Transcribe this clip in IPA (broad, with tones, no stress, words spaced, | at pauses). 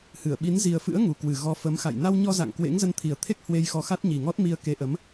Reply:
hɨ˧˩ə̯ɓi˨˦n zi˨˩ə̯fɨ̰˧˥ə̯ ŋu˨˩kwɨ˨˩ ɣɔ˨˦fə˨˦mxa̰˧˨j na˧wɲɔ˧za̰˧˨ŋ kwḛ˧˥ŋzə˧nt̪ʰi˨˩ə̯t̪ʰe˦˥k̚ hwe˧jxɔ˧xa˦˥t̚ ɲi˨˩ŋɔ˦˥t̚mi˧ə̯ ke˨˦ ʔə˨˦m